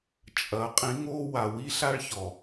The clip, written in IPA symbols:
t͡ʃʼɐ˨˦ qʼĩ˨˦ŋoː˦ wa˨wi˦ɬa˦ɭçɔ˨

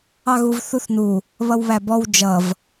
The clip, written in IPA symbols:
ɑɣuvθuθnu | βʌwβæbɔw d͡ʒʌv

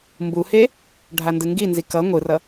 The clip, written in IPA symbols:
mbuhe | ɖʱandɯŋɡinzi kʌ ŋʷɯrʌ

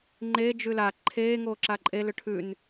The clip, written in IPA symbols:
ŋ͡ǃeː d͡ʒʉla ǃʰeː ŋoːǁaǃʼe lʏʈʰʉn

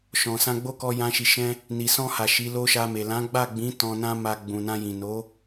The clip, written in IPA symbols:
ʃɔ̃˨sã˧ɡ͡bo˦kɔ˧ jã˧ʃi˨ʃɛ̃˧ | ni˨sɔ̃˧ha˨ ʃi˨˦lo˦ʃa˧me˨ lã˨˦ɡ͡ba˦˨ɡ͡bĩ˨˦ tɔ̃˧nã˦ma˧ ɡ͡bũ˨nã˧ jĩ˨no˨˦

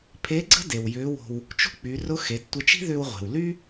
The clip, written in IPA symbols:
pʰe˧˥ɡ͡ǀə̤˥ de˩w jʏː˧˥wo̤˧w | t͡ʃo̤˥k͡py˩˧rʊ˧˥ xe˩˧d tʷe˧t͡ʃi̤˥ðʏː˧wʁʷe̤˩w ly˥

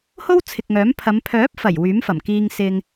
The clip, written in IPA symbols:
ho˥wt͡sʰɪ˨k̚ŋœː˨˥mpʰɐ˨˧m pʰœː˨˥p̚fɐ˨˩j wyː˨˥mfɐ˨˩mkiː˧ŋ sɪ˧ŋ

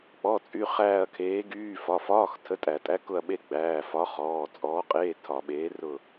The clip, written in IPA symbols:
k͡pɔ˩˧˩t͡sʼy˩˧˩ χæː˦˨ɐ̯kʰeː˨˥ɡyː˧˥˧ fɒ˩˧˩fɒː˧˥˧x tʰə˨˥tʼæ˧˩˧tʼæ˨˥ kʊ˦˨ɐ̯ɓe˦˨ ɡ͡bæː˩˧˩fɒ˨˥χɔː˩˧˩ t͡sʼɔː˨˥qʼeː˧˥˧ tʰɒ˧˩˧ɓeː˨˥rʊ˦˨

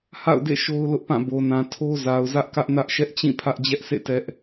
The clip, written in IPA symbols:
ha̰˦˨ʊ̯dḛ˦˨ ʃo˦ʊ̯lʊ˦ʔpã˦˨bo˨ nã˨tʰo˦za˨ʊ̯ zä˦ʔkä˦ʔnä˦ʔ ʃɛ˦ʔt͡ɕĩ˦˨pʰä˦ʔ d͡ʑɛ˦ʔsḛ˦˨ tɛ˦ʔ

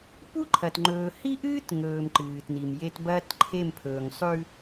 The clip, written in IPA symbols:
pu˦ǃʰɐ˨t ŋ͡ǃɵː˨hi˦ʔɨː˦t ŋɵː˨m ǃɨː˨tni˨mje˦t bɐː˦tǃʰe˦˨m pʰɵː˨ŋsˤʉ˦

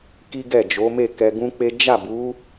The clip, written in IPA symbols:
ki˦ɡɛ˦˨d͡ʒo˨˦ me˦˨kɛ˧ɡũ˦k͡pe˦ d͡ʒa˦˨bu˨˦

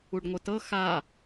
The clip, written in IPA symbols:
uɖŋʷɯtɤ xa

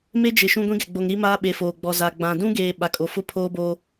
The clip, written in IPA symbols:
me˦d͡ʒɪ˨ ʃũ˦ɡʷĩ˦ɡɛ˨ɡ͡bo˨ŋ ɾi˦ maː˦ɓe˨foː˨ ɡ͡bɔ˨za˨ɡ͡bã˨ dũ˦ɡeː˨ ɓa˨kʼo˨fʊ˦ pʰoː˦boː˦

